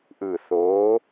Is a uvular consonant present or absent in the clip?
absent